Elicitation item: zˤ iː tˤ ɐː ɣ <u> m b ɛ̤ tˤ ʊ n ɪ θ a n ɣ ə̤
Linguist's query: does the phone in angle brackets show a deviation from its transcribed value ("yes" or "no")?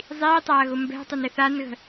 yes